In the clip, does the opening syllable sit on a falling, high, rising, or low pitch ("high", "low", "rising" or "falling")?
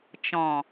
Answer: low